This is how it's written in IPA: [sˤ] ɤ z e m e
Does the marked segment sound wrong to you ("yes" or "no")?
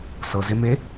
yes